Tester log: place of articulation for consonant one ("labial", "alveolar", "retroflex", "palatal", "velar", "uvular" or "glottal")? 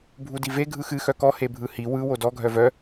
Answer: labial